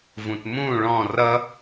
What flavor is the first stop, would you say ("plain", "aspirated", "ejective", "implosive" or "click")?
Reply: plain